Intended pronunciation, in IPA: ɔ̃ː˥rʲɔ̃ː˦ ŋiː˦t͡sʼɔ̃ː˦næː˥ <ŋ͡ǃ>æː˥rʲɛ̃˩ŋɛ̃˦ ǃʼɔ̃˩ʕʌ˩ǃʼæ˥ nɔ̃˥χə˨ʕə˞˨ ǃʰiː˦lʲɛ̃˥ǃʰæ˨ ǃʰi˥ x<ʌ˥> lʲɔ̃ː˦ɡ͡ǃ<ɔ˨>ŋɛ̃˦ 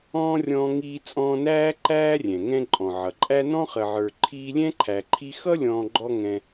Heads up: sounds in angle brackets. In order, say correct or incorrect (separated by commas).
incorrect, correct, incorrect